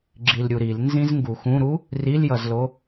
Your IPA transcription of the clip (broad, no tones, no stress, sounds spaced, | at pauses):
ɡ͡ǁ i l ɾʲ u ɾ i l n z ĩ z ŋ ɡ u x ũ ɾ u | r i l j ʌ z l o